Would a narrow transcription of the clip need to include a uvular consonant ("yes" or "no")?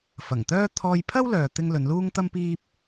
no